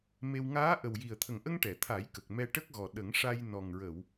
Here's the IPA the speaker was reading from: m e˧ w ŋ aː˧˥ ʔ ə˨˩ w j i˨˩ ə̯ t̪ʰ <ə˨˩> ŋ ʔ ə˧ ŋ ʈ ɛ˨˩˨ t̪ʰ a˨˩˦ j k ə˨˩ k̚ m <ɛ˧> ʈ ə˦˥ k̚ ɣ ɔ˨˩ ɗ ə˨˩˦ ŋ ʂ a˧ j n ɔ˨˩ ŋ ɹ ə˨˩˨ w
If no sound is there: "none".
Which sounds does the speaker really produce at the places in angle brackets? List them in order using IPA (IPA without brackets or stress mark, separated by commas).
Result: ə˨˩, ɛ˧